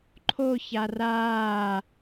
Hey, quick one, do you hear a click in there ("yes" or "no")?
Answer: yes